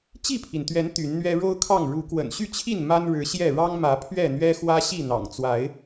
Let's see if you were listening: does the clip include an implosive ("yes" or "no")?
no